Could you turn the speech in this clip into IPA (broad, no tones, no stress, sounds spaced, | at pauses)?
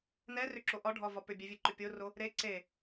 n ɛ r ʏ ǁ o ʔ ɒ ɖʱ ɒ v ɒ p ʏ bʲ ɛ vʲ e ǃ ʏ pʲ o r o | ɾ e ǀ e